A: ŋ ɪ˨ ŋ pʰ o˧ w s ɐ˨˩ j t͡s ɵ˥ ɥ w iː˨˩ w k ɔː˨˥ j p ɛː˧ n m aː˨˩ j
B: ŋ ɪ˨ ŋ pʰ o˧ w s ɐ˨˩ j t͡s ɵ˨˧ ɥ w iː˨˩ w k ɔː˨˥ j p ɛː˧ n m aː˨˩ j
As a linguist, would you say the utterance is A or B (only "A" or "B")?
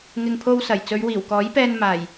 B